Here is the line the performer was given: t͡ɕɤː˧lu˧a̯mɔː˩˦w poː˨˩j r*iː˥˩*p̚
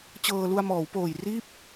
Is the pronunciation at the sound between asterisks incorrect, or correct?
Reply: correct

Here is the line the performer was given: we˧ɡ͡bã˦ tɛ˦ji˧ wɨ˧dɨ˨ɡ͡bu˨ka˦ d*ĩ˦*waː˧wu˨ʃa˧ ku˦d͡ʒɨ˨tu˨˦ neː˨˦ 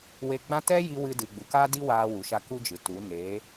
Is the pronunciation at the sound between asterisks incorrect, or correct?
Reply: incorrect: i˦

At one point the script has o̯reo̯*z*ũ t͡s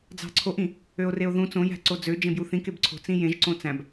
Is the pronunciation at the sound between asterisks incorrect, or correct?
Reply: incorrect: ð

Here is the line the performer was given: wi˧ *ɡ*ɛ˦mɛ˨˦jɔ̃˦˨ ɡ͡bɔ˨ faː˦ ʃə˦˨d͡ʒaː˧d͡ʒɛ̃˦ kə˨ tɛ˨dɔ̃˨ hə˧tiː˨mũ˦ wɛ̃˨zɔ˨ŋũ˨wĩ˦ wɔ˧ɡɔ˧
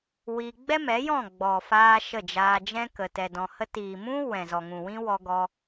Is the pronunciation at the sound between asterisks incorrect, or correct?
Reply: incorrect: ɡ͡b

